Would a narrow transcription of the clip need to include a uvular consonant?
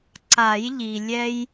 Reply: no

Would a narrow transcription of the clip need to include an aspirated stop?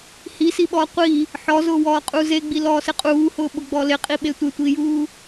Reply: no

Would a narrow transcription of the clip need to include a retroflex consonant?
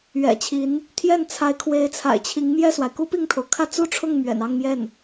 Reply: yes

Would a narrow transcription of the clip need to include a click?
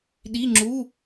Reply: yes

